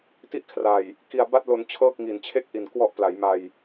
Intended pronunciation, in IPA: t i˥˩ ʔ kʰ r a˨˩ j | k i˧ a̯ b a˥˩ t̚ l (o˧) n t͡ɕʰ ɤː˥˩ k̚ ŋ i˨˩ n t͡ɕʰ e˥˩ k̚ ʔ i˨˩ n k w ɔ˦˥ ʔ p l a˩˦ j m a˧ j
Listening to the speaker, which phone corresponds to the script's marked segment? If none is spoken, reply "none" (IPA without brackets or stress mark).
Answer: o˧